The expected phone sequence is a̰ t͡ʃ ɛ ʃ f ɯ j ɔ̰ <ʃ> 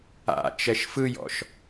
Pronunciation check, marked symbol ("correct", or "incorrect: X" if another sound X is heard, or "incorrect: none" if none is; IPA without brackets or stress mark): correct